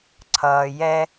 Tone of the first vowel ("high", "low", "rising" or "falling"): low